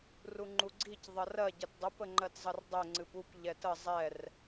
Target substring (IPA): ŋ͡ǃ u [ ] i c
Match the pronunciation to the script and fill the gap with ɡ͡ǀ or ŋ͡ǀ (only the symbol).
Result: ɡ͡ǀ